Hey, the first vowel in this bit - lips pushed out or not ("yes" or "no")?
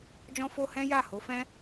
yes